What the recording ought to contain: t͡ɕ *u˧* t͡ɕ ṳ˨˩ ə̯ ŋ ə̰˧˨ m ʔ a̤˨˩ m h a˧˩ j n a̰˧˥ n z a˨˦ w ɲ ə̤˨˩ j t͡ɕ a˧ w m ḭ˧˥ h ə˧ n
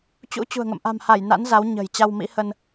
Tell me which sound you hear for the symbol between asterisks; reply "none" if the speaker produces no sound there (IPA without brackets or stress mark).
ṵ˧˥